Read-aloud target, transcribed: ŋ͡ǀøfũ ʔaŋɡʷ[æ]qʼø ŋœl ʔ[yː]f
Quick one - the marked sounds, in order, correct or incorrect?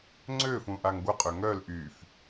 incorrect, correct

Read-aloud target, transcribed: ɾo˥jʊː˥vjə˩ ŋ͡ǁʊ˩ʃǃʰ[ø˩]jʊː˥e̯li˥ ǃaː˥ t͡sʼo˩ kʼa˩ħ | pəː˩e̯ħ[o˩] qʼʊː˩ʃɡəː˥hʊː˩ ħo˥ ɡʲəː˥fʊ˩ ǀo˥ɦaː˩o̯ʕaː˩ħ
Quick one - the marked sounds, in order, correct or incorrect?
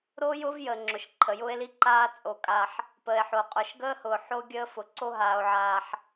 incorrect, correct

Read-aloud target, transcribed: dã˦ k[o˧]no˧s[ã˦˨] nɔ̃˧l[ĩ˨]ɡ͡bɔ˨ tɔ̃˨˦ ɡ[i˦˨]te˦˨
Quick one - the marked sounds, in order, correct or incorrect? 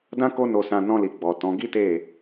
incorrect, incorrect, incorrect, incorrect

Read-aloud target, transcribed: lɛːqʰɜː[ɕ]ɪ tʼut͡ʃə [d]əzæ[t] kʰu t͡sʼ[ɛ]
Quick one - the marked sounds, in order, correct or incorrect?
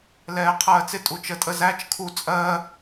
incorrect, incorrect, incorrect, incorrect

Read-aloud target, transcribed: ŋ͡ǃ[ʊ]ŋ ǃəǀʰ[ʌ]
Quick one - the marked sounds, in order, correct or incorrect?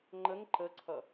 incorrect, correct

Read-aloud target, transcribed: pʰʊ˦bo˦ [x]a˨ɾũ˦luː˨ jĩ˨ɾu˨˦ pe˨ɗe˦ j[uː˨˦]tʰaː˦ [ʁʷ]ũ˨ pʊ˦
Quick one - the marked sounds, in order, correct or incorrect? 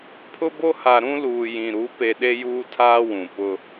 incorrect, incorrect, incorrect

